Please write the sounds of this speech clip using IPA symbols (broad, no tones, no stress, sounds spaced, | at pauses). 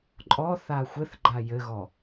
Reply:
ǃʼ ɔ θ a xʷ ɘ θ ɡ͡ǃ a j ɘ ɣ ɔ